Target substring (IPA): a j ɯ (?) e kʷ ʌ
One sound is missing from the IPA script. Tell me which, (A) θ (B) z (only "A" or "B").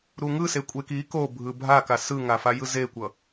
B